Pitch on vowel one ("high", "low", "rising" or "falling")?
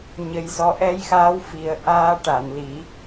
rising